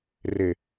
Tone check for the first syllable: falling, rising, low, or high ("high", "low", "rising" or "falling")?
low